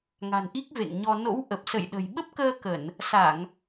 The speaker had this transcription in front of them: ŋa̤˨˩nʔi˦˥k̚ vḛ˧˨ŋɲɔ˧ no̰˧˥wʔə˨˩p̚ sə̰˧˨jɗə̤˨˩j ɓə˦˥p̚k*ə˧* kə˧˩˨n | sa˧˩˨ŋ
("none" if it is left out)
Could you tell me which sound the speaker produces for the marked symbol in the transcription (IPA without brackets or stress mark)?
əː˧